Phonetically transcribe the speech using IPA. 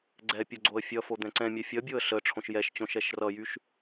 ɡ͡ǀ ɛ pʲ o ɡ͡ǀ o ə̯ fʲ ʌ f o d̪ ɛ̃ ǀ ɛ̃ mʲ ɛ fʲ ʌ bʲ o ə̯ ɬ ə ʈ͡ʂʰ õ ʃ j ɛ ʃ t͡ɕ õ ʃ ɛ ʃ r ʌ j y ʃ

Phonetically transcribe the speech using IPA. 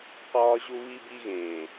q ɒː˧ ʑ u˧ β i˧ b i˧ ɣ ẽː˨

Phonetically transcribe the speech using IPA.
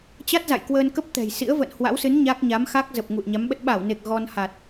t͡ɕ a˦˥ t̚ z a̰˧˨ j k w əː˧ n k ə˦˥ p̚ t̪ ɛ̤˨˩ j s ḭ˧˥ ə̯ v ə̰ː˧˨ n h w a̰˧˥ w s ɨ˨˦ n ɲ a˦˥ k̚ ɲ a˨˦ m x a˦˥ k̚ z ə˨˩ p̚ ŋ ṵ˧˨ ə̯ ɲ a˨˦ m ɓ ə˦˥ t̚ ɓ a˧˩ w n e˨˩ k̚ ɣ ɔ˧ n h a˨˩ t̚

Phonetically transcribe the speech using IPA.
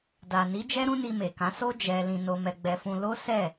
d a˨ n i˨˦ d͡ʒ ɛ˦ ɾ ũ˦ n i˧ m e˨ k ã˨˦ s o˦ d͡ʒ ɛ˧ l ĩ˧ n o˧ m ɛ˧ ɡ͡b ɛ˧ f ũ˧ l o˦ s ɛ˦˨

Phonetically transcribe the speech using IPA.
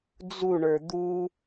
d͡z u ɳ ə˞ d̪ u

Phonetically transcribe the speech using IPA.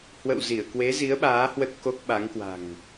h w ə̰˧˨ w z i˧˩ ə̯ k w e˨˦ z i˨˦ ə̯ ɓ aː˨˦ h w ə˦˥ t̚ k o˦˥ k̚ ɓ a˨˦ ŋ k w a̤˨˩ ŋ

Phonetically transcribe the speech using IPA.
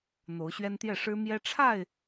n̪ o˨˦ ʊ̯ ɕ ɥ ɛ˦ n t̪ j ɛ˥˨ ʂ ɻ̩˦ m j ɛ˦ ʈ͡ʂʰ a˥˨ ɪ̯

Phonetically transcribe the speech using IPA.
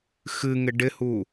x ɨ ŋ ɪ ɖ ɪ h u

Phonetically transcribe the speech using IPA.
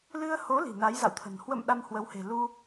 l ɨ˧ ə̯ h o˨˦ l i̤˨˩ n a˨˦ j z a̰˧˨ w t̪ʰ ə̤˨˩ n h w ə̰˧˨ m ɗ a˧ m h w ə˨˦ w h e̤˨˩ l u˧

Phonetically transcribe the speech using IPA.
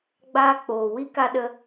ɡ͡b aː˧ k͡p oː˨ w i˦ k a˧ ɗ ə˧

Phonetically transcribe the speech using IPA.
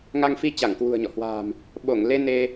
ŋ a˧ ŋ f i˧ t͡ɕ a˧˩ ŋ k w ṳ˨˩ ə̯ ɲ ɔ̰˧˨ h w a̤˨˩ m | ɓ o˧˩ ŋ l e˧ n e˧

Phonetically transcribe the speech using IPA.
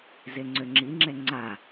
z e ŋ͡ǀ ø ŋ͡ǁ i ŋ͡ǁ ɛ ŋ͡ǀ a

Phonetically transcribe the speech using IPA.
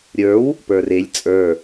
ɾʲ ə˞ w | p ə˞ r e lʲ t͡sʼ ə˞

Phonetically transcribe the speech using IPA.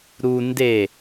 ɾ u n d e

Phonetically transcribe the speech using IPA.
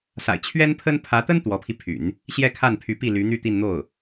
s a̰˨˩ ɪ̯ t͡ɕʰ ɥ ɛ˥ n pʰ ə˥ n pʰ ä˧˥ t̪ ə˥ n t̪ w ɔ˧˥ pʰ i˧ pʰ y̰˨˩˦ n | ɕ j ɛ˥˧ kʰ a˥˩ n pʰ y˧˥ p i˥˩ l y˧˥ n̪ y˥˧ t̪ i˥˧ n n̪ o˥˩ ʊ̯

